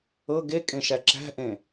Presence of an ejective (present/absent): present